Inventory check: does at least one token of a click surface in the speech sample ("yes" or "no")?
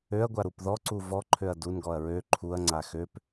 yes